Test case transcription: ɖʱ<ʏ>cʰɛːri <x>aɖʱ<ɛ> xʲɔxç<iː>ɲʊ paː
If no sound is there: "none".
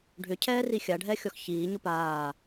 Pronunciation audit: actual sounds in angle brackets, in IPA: ʏ, xʲ, ɛ, iː

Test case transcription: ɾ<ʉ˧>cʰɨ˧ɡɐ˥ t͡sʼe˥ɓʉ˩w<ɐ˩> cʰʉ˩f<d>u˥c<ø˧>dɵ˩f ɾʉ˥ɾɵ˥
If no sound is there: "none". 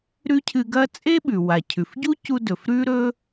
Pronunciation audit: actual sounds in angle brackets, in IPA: ʉ˥, a˩, ɟ, u˧

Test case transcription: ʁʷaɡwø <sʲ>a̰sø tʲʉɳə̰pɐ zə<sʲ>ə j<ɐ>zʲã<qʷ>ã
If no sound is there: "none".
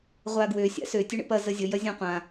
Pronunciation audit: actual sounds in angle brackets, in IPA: sʲ, zʲ, ɐ, qʷ

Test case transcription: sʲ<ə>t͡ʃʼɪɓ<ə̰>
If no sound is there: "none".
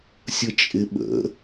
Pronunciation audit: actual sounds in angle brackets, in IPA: ə, ə̰

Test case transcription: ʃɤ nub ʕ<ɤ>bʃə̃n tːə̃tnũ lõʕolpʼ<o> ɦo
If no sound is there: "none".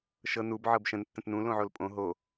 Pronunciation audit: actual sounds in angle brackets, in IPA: ɤ, õ

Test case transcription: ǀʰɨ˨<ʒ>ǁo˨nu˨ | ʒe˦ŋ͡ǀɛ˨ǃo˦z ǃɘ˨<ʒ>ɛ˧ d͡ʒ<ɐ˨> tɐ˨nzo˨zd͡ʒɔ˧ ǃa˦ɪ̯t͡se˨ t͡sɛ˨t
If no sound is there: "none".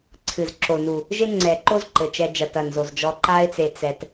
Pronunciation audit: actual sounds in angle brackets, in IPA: z, t͡ʃ, ɐ˨

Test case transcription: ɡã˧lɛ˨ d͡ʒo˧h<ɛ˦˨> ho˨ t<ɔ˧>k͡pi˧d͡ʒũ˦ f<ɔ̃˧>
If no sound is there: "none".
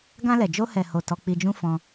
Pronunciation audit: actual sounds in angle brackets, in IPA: ɛ˨, ɔ˧, ɔ̃˧

